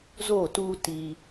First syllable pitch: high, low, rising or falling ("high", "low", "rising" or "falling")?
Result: falling